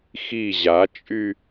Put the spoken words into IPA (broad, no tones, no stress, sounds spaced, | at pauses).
x i ʑ a t͡ʃʼ y